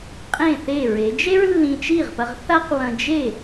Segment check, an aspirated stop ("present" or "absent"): absent